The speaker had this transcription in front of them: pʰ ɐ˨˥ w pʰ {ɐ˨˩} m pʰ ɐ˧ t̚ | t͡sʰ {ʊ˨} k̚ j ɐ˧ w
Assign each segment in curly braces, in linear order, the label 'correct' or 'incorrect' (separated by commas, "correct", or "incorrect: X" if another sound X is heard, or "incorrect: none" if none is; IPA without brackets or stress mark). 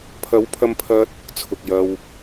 incorrect: ɐ˧, correct